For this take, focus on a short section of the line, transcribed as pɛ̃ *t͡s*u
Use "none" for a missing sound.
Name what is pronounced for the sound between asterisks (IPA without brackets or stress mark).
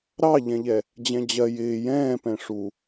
ʂ